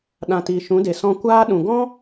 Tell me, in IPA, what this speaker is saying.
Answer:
ɗ ã˨ t iː˨ ʃ ũ˨˦ d e˨ s ɔ̃˧ kʷ aː˦ ɗ ũ˨ ɡ ɔ̃˦

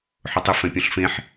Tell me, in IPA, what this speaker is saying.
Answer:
ħ ʊ tˤ ɪ f ɛ̃ pʲ ɔ̃ ɬ f ẽ ħ

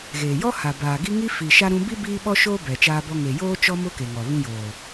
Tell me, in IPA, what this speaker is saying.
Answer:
ɣ eː˨ j ɔ˦ h a˨ b aː˨ ɡ i˦ ŋ i˦ f i˨ ʃ a˦ ɾ ũ˦ b i˦ b iː˦ ɓ ɔ˦ ʃ oː˦ b ɛ˨ t͡ʃ aː˦ b ɔ˦ ŋ e˨ j oː˦ t͡ʃ ɔ˦ m ʊ˦ k e˨ ŋ ɔ˨ β ũ˦ j oː˨

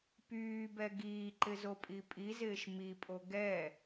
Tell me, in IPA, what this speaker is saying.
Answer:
p yː b ɛ ɡ iː ǃ ɪ z o pʼ i pʼ i z ɪː ʃ m i pʼ o ɡ ɛ

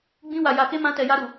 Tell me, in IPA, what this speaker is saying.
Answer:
ɡ͡b ĩ˦ w a˧ j a˧ k e˦ m ã˦ t ɛ˧ j a˦ ɾ u˧

